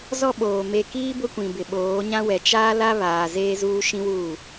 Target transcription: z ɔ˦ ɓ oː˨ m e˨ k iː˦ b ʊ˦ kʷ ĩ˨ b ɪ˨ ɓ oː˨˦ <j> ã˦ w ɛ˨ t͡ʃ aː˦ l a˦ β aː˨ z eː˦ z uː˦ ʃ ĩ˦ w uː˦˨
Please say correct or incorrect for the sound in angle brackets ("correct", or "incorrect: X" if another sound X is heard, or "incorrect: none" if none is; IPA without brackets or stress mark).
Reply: incorrect: ɲ